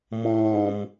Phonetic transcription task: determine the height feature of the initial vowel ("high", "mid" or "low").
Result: mid